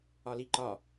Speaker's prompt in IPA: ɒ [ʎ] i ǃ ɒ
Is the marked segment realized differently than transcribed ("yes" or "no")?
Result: yes